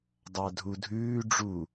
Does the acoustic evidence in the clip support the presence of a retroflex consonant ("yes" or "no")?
yes